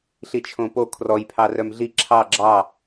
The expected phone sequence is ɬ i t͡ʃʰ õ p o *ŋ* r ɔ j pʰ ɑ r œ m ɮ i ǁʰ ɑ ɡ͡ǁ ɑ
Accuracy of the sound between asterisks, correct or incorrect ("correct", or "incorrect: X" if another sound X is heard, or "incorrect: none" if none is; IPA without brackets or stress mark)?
incorrect: kʰ